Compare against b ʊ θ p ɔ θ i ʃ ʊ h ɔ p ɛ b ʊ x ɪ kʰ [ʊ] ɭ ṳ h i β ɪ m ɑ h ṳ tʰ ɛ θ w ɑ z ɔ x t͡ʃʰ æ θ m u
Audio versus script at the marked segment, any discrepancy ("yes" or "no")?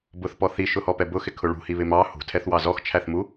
no